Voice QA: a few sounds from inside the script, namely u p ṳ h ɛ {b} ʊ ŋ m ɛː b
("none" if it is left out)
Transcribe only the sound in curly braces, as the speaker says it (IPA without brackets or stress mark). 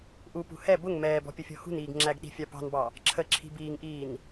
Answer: b